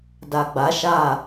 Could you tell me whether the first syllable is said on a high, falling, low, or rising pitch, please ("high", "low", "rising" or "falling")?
low